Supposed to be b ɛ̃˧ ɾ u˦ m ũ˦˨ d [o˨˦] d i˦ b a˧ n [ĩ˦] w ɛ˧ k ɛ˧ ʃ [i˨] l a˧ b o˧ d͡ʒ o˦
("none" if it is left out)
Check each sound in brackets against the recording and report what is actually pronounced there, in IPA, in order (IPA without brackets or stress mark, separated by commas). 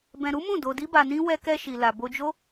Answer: o˧, ĩ˦, i˨